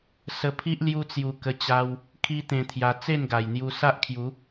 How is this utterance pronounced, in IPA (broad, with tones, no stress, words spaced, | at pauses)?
sə˧pʰi˦ʔ lju˦t͡sju˧kə˧t͡ɕa˧w | kʰi˦t̪ẽ˧t̪ʰja˧ t͡se˥˧nɡa˨˩jn̪ju˧ sa˦ʔkʰju˨˦